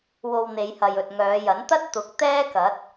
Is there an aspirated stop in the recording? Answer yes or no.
no